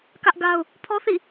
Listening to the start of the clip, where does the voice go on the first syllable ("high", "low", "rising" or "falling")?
high